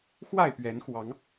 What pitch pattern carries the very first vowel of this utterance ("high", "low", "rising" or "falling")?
falling